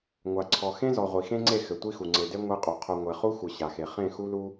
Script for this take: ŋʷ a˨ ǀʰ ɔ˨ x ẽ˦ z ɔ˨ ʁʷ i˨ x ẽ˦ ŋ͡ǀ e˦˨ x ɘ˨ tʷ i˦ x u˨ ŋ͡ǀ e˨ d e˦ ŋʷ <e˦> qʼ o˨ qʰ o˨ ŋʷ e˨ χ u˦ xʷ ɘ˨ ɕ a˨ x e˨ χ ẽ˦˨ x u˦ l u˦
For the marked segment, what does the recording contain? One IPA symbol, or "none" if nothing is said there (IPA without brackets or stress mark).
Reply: e˦